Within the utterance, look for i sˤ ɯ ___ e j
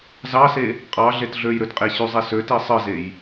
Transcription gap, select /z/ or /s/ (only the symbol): z